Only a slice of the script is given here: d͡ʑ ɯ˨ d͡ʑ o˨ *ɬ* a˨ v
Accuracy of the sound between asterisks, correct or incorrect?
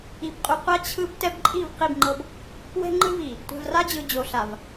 correct